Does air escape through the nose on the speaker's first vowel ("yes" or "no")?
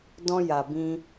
yes